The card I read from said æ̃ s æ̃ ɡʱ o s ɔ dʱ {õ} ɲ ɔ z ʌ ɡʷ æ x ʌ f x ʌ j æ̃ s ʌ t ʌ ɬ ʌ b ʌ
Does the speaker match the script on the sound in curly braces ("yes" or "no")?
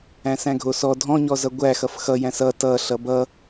no